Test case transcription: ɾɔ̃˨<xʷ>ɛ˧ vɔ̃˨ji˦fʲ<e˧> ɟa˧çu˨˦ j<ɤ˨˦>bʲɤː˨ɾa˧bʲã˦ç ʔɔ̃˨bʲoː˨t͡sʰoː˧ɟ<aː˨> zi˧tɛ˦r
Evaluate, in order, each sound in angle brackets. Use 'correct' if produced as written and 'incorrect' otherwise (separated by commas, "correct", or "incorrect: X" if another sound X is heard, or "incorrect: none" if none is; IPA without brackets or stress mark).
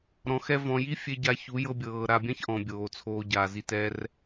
incorrect: x, correct, incorrect: ɤ˧, correct